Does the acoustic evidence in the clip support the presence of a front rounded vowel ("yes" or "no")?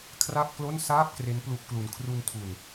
no